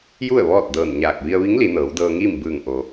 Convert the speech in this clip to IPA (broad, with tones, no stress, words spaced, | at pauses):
ju˥˨ə̯ʋɔː˥˨t̚ dɤː˧˩nɲaː˧˩k̚ ʋi˧ə̯ʋi˧˥ŋ li˩˧nɤː˩˧wdɤː˧ŋiː˥˨m bɯː˧˩ŋ ʔo˩